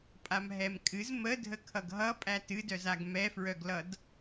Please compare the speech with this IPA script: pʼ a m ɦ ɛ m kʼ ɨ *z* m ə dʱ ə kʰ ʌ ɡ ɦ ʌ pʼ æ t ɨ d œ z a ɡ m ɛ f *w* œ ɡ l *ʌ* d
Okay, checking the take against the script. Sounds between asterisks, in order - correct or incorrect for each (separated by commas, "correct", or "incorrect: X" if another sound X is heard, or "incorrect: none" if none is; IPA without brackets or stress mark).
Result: correct, incorrect: ɹ, correct